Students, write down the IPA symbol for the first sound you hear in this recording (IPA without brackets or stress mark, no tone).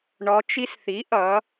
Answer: ɳ